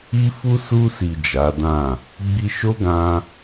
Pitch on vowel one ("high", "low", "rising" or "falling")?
high